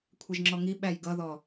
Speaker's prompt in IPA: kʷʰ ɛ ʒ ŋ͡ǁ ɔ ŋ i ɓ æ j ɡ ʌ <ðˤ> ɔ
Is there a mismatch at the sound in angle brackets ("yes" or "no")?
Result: yes